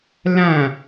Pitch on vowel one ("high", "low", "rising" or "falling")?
falling